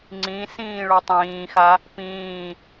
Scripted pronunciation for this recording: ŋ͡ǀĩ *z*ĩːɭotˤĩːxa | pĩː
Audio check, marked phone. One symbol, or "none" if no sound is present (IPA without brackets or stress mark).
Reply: s